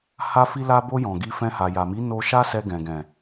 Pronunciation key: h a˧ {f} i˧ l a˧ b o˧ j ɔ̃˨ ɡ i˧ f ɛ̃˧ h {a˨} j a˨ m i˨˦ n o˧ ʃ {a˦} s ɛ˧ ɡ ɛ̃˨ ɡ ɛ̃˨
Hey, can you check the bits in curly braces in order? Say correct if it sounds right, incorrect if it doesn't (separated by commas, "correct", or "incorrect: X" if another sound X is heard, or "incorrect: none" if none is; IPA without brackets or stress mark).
correct, correct, correct